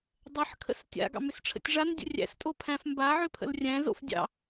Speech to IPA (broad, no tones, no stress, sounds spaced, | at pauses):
dˤ ə ħ kʰ ə̰ s tʲ a̰ ɡ ɑ̰ m ʏ s ʈ͡ʂʰ ə̰ tʲ ʐ a n dʲ ə̰ rʲ æ̰ s tʼ o pʰ æ̃ f m b a ʕ ʏ pʰ ə̰ l rʲ æ̃ z o̰ f dʲ ɑ̰